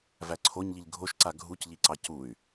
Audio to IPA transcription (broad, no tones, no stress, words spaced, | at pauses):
væǀʰoɲʎiʎ ɡʱoʃǀa ɡʱucʎiǀɑ cuy̯